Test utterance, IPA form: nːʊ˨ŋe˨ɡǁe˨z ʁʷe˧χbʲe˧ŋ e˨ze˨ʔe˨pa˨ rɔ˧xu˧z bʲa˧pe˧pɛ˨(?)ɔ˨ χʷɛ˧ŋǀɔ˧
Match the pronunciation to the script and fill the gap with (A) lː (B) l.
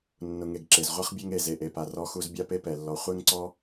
A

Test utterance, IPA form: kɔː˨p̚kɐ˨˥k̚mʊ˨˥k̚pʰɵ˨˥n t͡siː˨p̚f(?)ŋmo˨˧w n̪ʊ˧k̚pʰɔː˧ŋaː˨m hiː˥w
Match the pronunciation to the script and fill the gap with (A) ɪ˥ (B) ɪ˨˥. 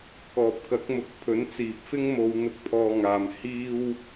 A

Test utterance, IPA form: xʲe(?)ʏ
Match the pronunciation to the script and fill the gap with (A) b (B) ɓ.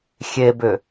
A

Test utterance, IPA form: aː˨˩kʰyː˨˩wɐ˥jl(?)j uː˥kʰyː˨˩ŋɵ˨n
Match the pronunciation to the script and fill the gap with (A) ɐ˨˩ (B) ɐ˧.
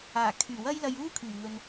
B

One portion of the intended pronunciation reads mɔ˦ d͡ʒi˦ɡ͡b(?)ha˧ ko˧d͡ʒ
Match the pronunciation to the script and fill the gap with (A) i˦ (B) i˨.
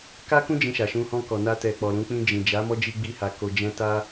A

